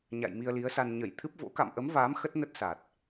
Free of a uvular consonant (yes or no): yes